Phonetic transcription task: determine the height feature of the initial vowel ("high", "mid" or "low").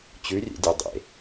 high